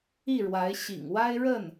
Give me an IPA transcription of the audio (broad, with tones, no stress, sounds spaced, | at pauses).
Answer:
i˥˩ ɻ w a˧˥ ɪ̯ ɕ ḭ˨˩ ŋ w a˥ ɪ̯ ɻ ə˥˩ n